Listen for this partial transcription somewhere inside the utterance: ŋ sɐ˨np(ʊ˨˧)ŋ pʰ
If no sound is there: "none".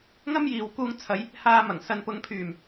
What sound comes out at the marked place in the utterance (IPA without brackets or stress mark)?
ʊ˨˧